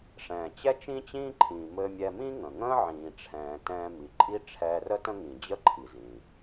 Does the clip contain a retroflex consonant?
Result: yes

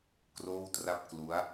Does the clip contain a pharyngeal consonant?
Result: no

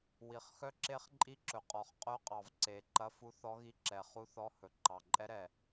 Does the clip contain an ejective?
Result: yes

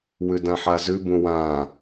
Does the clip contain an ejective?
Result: no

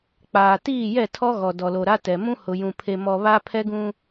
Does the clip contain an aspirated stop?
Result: yes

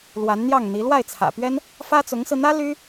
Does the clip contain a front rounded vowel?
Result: yes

